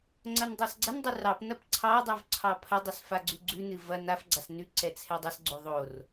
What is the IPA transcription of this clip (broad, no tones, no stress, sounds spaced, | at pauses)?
ŋ͡ǀ ɐ n dˤ ɑ s ɡ͡ǀ ɐ n dˤ ʉ r ɑ p n ɐ p ǀʰ ɑ dˤ ʉ v ǀʰ ɑ pʰ ɐ dˤ ɨ s f a ɡ͡ǀ ʉ ɡ͡ǀ ʉ n ɨ v ɐ n a f ɡ͡ǀ a s n ʉ ǀ ɛ t͡sʰ ɛ dˤ ɐ s ɡ͡ǀ o ðˤ o r